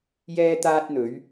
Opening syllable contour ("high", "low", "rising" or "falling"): high